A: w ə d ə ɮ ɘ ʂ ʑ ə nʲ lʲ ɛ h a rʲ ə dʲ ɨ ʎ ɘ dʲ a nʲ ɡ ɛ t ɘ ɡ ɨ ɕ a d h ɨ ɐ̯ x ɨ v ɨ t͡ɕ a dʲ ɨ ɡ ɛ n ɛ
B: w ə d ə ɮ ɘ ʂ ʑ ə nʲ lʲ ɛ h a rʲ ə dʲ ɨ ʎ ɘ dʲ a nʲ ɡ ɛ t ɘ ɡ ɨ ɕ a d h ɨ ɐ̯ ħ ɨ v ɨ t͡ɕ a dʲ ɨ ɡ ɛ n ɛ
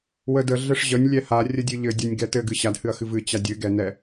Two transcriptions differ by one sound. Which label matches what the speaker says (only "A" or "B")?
A